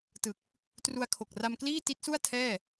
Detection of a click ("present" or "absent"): absent